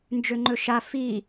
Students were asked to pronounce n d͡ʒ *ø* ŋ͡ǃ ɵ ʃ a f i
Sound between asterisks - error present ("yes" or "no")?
no